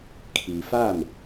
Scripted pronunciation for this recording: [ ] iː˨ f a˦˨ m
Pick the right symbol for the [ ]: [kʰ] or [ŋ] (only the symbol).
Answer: kʰ